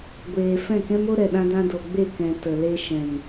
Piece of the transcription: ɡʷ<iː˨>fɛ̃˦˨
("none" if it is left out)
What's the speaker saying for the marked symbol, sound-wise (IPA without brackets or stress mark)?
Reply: eː˨